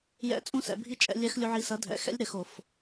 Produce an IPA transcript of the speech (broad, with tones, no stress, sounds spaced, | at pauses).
j ɛ̰˩˥ t͡sʼ ũ˧˥ s ɛ̰˩ bʱ i˧˥ t͡ʃʼ ɛ̰˩˧ lʲ ɛ˧˥ x lʲ u˧ ʕ i˧ s ɐ˩˥ dʱ ɛ̰˩˧ x ɛ̰˧˥ lʲ ɾ ɘ˩˧ x o˩ f